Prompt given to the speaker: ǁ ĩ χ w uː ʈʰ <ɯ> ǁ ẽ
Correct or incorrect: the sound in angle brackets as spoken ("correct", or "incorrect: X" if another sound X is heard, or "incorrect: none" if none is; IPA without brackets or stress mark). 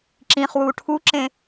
incorrect: u